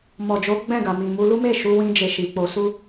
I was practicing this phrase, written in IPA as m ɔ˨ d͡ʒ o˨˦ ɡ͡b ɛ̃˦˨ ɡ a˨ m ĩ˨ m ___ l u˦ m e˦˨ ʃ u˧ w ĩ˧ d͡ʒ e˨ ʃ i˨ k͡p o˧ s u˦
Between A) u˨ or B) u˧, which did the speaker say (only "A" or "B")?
B